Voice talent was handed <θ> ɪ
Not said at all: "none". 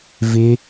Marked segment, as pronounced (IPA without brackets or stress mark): v